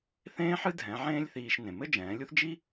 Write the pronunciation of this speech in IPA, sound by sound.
θ ẽː˥ ħ ɨ˥ dʱ ɛ̃˩˧ ʕ ẽː˥ lʲ θ iː˧ ʃ n ẽ˩ m ɘ˥ d͡ʒ ɛ̃ː˩˧ lʲ u˥ θ d͡ʒ i˥

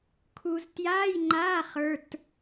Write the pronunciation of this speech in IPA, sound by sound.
kʰ u˨ z t j aː˧˥˧ j ŋ͡ǃ aː˧˥˧ χ ə˞˧˥˧ t

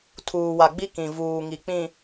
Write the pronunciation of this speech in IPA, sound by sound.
tʰ uː˨ w a˨ ɡ͡b i˦ k ĩ˨ v uː˨ ŋ i˨ k͡p ĩ˨

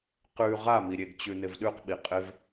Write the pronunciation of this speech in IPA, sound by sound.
q ʉ ʁ a m i ɾʲ e ɡ t͡ɕ ʉ n ɪ v ɗ ʉ q ɓ i qʼ ɪ v

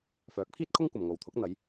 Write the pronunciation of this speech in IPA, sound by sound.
f œː˨˥ k̚ pʰ iː˥ t̚ kʰ ʊ˥ ŋ kʷ ɐ˨ m ŋ o˨ w t̪ʰ ʊ˨˥ k̚ n̪ ɐ˨˧ j

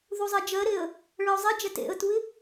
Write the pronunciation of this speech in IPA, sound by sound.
ð u zˤ ɛ d͡ʒ ɜ ɾ e ə̯ | ɭ ɜ ʊ̯ zˤ e d͡ʒ ɛ t ḛ ə̯ t u ɪ̯

